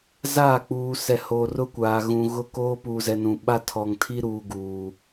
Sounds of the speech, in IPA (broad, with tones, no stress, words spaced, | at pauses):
zaː˦˨k͡puː˨ sɛ˨hoː˨r ʊ˦kʷaː˨ ɣũ˨ɣʊ˦koː˦ puː˨zɛ˨ nũ˨ɓa˦ tʰɔ˨ŋtʰi˦ɾuː˨ ɡuː˨